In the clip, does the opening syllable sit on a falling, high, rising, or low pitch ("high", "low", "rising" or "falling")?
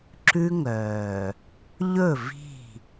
high